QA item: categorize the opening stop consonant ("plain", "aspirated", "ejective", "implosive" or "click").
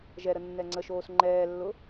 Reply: click